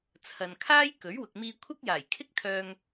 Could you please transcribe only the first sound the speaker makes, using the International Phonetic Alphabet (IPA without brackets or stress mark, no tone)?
t͡sʰ